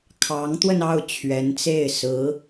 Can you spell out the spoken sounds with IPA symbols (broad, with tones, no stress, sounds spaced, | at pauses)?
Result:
kʰ ɑ˧˥ ŋ t̪ w ə˧ n ɑ˥˩ ʊ̯ t͡ɕʰ ɥ ɛ˧˥ n t͡s e˥˩ ɪ̯ s ɹ̩˧˥